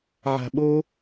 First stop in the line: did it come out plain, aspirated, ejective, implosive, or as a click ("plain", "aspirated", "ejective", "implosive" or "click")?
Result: implosive